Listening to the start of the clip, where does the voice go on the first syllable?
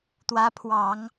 rising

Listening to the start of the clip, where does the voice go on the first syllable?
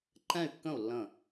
falling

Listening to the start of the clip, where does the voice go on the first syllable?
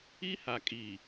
high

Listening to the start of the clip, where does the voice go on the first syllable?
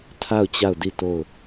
falling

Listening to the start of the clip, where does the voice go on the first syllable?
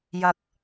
high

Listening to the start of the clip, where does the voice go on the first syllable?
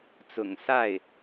low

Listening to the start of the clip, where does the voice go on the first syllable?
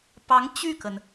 rising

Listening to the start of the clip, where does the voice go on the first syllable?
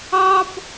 high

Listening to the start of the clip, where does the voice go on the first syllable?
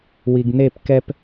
low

